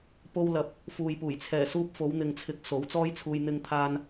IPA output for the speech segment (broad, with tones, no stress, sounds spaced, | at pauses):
p o˧ w l ɐ˨ p̚ | f uː˨ j p uː˨˩ j t͡sʰ ɛː˨˩ s uː˧ p̚ f o˨˧ w n̪ ɪ˨ ŋ t͡sʰ ɪ˨˥ k̚ s o˨˥ w t͡s ɔː˥ j t͡sʰ uː˧ j n̪ ɪ˧ ŋ t̪ʰ aː˧ n